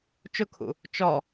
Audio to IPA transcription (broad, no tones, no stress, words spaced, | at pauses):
t͡ʃʊkʰṵ | t͡ʃɔ